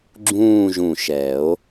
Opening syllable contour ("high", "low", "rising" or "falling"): falling